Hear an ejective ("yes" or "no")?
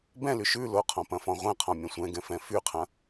no